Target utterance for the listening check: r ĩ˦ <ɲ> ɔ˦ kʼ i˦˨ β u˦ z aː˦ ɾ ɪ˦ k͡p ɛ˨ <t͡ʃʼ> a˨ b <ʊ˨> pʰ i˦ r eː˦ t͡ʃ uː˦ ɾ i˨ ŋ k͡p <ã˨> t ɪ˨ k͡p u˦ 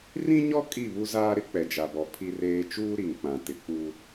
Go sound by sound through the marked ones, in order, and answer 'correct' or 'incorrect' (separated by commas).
correct, incorrect, incorrect, correct